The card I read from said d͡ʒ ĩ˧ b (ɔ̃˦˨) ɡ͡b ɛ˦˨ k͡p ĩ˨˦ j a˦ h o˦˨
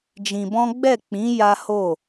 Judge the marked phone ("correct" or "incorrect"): incorrect